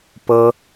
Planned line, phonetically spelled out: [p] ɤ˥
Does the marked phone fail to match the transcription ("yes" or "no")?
no